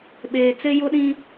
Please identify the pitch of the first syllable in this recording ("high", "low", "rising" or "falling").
low